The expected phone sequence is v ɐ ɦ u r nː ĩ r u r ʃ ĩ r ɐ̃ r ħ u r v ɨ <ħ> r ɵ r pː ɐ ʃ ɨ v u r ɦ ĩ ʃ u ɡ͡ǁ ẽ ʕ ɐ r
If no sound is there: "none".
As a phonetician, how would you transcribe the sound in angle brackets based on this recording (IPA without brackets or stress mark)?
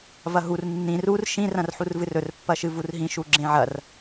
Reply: none